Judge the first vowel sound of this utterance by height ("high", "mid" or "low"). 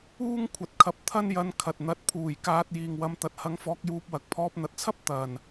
high